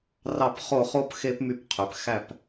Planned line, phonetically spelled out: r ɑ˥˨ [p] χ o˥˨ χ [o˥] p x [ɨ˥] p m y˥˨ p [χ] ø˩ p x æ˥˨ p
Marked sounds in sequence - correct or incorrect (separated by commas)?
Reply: correct, correct, incorrect, incorrect